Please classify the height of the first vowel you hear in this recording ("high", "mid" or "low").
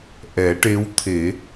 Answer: mid